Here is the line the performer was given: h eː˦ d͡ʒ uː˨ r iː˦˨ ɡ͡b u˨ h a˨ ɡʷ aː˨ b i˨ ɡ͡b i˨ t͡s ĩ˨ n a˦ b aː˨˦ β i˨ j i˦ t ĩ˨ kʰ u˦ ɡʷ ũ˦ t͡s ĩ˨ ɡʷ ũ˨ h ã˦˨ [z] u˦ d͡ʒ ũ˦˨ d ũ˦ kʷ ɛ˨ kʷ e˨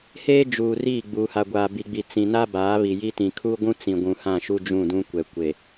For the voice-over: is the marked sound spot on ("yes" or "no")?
no